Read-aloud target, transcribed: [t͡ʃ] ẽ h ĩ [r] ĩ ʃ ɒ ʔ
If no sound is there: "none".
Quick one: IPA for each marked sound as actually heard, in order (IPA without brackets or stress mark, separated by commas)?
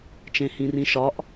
t͡ʃ, r